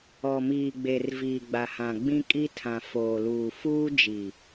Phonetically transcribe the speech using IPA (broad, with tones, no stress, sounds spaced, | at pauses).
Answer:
ɔ˨ m iː˨ ɡ͡b e˨ r v iː˨ ɡ͡b a˨ h ã˨ ɡ͡b ĩ˦ kʼ i˦ tʰ ã˨ f oː˨ l uː˨ f uː˦ d͡ʒ i˨